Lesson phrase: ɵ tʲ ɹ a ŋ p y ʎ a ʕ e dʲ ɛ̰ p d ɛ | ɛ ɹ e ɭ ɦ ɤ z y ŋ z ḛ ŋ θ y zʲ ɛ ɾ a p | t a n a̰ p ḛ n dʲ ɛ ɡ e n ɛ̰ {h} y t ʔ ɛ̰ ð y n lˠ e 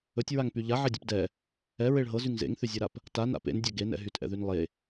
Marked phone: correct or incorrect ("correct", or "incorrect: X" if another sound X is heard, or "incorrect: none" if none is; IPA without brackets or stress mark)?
incorrect: ɦ